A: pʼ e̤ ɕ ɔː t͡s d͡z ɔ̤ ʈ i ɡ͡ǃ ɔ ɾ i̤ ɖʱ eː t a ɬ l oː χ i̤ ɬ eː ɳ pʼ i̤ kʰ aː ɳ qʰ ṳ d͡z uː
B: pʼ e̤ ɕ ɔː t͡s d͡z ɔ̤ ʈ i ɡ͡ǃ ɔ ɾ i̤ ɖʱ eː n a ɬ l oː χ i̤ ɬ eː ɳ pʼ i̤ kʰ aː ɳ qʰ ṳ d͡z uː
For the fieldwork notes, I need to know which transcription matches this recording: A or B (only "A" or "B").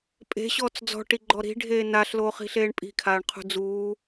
B